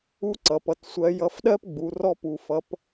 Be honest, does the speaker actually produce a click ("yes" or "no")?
yes